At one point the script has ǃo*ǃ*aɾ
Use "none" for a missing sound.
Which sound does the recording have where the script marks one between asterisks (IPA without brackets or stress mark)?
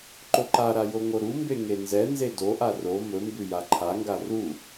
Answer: ǃ